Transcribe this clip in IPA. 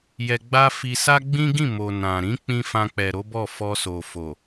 j ɛ˧ ɡ͡b a˦ f i˧ s a˦ ɡ͡b ĩ˦ ɡ ĩ˦˨ m o˨ n ã˨ ɾ ĩ˨˦ k͡p ĩ˧ f ã˧ k͡p ɛ˨ ɾ o˨˦ b ɔ˦˨ f ɔ˧ s o˨ f o˨

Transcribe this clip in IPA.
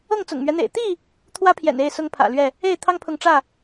ɤ˥˨ ŋ t͡s ʊ̰˨˩ ŋ m ɥ ɛ˦ n̪ ḛ˨˩ ɪ̯ t̪ i˥˨ | t̪ʰ w ä˦ pʰ j ɛ̰˨˩ n e˥˨ ɪ̯ s ʊ˦ ŋ pʰ ä̰˨˩ l ɥ ɛ˥˨ | e˥˨ ɪ̯ t̪ʰ ɑ˦ ŋ pʰ ʊ˨ ŋ ʈ͡ʂ ä˥˨

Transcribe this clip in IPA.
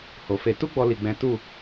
h o˨ f e˧ t u˦ ɡ͡b ɔ˧ l i˧ ɡ͡b ɛ̃˦ t u˦˨

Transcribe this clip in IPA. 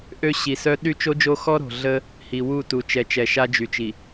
ʔ ø˦ ɕ i˨ s œ˦ ɗ y˦ t͡ʃ o˦ d͡ʒ o˦ x ɔ˦ ɾ o̤˨ ɮ ə˦ | h i˨ w u˦˨ t u˨ t͡ʃ ɛ˨ t͡ʃ ɛ˨ ʃ a˦ d͡ʒ y˨ t͡ʃ i˨

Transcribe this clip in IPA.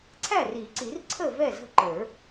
ǀʰ æ˥˩ r i˨˩˦ ǀ i˨˩˦ r ǀʰ ə˥˩ v ɛ˥˩ z ə̤˥˩ ǃ ə˞˨˩˦

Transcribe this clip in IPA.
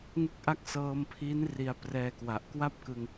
ŋ ɯ˥˩ k̚ ʔ a˥˩ k̚ s ɤː˧ m pʰ i˦˥ n r i˧ a̯ p r ɛː˧ k w a˨˩ ʔ k w a˥˩ p̚ k ɯ˧ ŋ

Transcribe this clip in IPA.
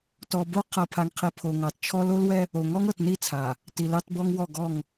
t ɔ˨ b o˦ qʰ ɤ˨ pʰ a˨ ŋ qʰ i˨ pʰ o˨ ŋ ɑ˨ t t͡ʃʰ ɔ˦ l o˦ l w ɛ˦ | o˨ ŋ ɔ˦ ŋ ɤ˨ t n i˦˨ t͡sʰ a˨ | t i˨ l ɑ˦ t b ɔ˦ ŋ w ɔ˦˨ ɡ ɔ˦˨ ŋ

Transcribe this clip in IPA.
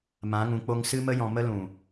m ã˨˦ ŋ ũ˨ k͡p o˧ ŋ s ɨ˦ m ə˦ j ɔ̃˨ m ə˦ l ũ˨

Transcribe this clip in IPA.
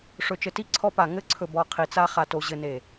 ʂ ɵ˨ t͡ʃ ɘ˨ t i˦ ǀʰ ɔ˦ p a˨ ŋ ɘ˦ ǀʰ ɵ˨ b ɔ˨ qʰ i˨ t͡s a˦ χ a˨ t o˨ ʑ ɘ˨ n e˨

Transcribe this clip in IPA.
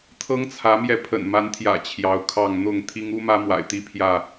t̪ʰ ɤ˦ ŋ t͡sʰ ä˨˦ m j ɛ˧ pʰ ə̰˨˩ n m a˨˦ n t̪ʰ j ä̰˨˩ t͡ɕʰ j ɑ˨˦ ʊ̯ kʰ ɑ˥˨ ŋ n̪ ʊ˥˨ ŋ t̪ʰ i˦ ŋ u˦ m ä˦ m w a̰˨˩ ɪ̯ t̪ i˦ pʰ j ä˥˨

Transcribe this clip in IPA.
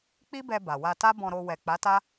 k͡p i˦ b ɛ˧ b a˨ w a˧ t a˦ b ɔ̃˧ ɾ o˧ w ɛ˨ k͡p a˨˦ t a˦

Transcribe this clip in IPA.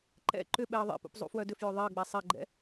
ǃ ɛ̰ ǃ ʏ ɓ ɛ ə̯ ðˤ ḛ p ṵ p zˤ ṵ f w œ d ʏ f j ʏ ðˤ e ə̯ ɡ͡b ɛ sˤ e ɡ͡ǃ ɛ̰

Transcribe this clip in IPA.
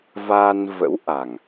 v aː˧ n v ə̰˧˥ w ʔ a˨˩ ŋ

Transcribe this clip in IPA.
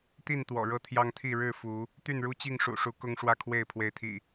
t̪ i˥˨ n t̪ w ɔ̰˨˩ ɻ ɤ˥˨ t̪ʰ j ɑ˦ ŋ t̪ʰ i˥˨ ɻ ɻ̩˥˨ f u˨˦ | t̪ y˥˨ n ɻ u˦ t͡ɕ i˥˨ ŋ ʂ ṵ˨˩ ʂ u˨˦ k ʊ˦ ŋ ʂ w ä˥˨ kʰ w e˥˨ ɪ̯ pʰ w e˨˦ ɪ̯ t̪ʰ ḭ˨˩

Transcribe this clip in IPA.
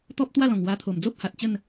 t̪ ɔ˦ p̚ t̪ w a˥˧ l ɔ̃˨˩ ŋ w a˧ t̪ʰ o˨˩ m d͡z o˦ p̚ h a˨ t̚ t͡ɕ ə˥˧ n

